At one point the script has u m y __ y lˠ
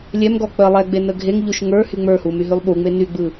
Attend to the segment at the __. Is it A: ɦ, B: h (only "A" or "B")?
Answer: A